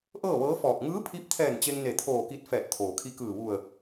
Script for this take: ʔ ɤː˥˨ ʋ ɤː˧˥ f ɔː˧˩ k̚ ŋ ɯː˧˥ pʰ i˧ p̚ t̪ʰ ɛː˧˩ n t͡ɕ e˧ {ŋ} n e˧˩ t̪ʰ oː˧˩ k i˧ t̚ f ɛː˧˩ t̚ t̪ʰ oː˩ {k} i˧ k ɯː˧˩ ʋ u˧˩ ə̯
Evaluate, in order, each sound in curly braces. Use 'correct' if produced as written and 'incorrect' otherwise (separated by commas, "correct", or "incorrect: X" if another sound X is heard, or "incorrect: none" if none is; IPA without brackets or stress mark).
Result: correct, incorrect: kʰ